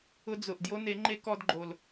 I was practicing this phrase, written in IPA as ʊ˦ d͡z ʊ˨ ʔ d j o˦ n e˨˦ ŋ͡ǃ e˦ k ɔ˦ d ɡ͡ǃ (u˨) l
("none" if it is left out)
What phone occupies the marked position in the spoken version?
o˨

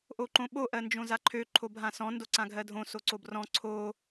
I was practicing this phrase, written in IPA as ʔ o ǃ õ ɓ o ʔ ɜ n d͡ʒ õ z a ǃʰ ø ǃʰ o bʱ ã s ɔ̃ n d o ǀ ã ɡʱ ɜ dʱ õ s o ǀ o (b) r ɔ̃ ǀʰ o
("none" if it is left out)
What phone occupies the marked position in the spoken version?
b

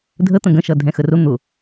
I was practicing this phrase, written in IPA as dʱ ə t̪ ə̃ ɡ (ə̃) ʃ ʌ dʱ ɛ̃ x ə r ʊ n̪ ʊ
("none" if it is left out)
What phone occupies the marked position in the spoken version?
ə̃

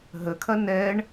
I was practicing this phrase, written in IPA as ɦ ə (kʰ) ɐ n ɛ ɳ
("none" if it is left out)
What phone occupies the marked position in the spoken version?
kʰ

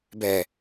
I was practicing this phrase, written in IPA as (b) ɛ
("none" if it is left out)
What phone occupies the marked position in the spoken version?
b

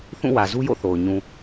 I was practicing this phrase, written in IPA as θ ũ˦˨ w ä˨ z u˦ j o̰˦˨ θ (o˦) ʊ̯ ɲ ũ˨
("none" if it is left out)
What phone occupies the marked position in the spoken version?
o˨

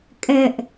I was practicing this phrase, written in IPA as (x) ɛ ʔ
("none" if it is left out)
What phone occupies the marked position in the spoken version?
kʼ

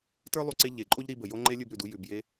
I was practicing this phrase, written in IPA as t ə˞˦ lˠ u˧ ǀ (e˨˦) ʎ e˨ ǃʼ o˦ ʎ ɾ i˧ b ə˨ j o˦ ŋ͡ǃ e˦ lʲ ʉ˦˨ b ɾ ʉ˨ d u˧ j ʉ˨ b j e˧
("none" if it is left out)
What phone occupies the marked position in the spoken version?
e˧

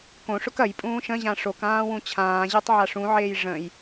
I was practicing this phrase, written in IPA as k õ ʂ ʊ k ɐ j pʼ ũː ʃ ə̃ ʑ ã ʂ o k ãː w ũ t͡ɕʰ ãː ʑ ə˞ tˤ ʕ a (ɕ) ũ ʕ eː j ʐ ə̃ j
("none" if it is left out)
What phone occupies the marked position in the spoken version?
ʂ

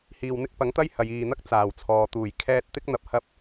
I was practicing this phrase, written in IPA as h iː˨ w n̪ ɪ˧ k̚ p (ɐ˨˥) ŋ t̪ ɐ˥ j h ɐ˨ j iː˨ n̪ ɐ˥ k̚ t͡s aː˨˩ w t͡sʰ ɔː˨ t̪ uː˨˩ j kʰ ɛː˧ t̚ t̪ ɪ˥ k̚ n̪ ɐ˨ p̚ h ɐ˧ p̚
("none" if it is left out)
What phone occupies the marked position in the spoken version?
ɐ˨˥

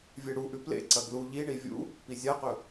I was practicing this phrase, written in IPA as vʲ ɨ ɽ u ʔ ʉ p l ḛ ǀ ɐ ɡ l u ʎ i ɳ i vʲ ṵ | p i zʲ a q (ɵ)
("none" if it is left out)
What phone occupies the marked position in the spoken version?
ɵ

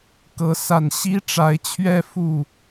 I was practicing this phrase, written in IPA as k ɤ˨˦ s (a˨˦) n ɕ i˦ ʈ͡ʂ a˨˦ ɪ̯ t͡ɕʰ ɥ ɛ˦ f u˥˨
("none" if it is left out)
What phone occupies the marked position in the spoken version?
a˨˩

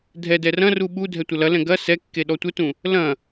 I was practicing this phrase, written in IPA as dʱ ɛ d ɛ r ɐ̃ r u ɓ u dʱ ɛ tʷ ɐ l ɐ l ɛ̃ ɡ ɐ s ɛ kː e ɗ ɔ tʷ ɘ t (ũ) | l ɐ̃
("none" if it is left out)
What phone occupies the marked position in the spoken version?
ũ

